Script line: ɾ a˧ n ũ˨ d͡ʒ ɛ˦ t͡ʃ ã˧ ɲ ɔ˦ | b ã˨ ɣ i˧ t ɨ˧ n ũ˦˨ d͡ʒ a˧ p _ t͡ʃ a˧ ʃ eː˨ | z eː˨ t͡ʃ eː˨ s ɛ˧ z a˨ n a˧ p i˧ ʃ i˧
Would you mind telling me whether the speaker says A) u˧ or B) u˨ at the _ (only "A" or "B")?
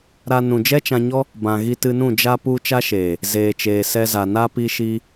A